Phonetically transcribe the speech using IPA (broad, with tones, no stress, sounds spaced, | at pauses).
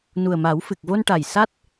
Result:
n u˨˩ ə̯ m a˨˩˦ w f ɨ˨˩ k̚ v o˧ n ʈ a˨˩ j s a˦˥ t̚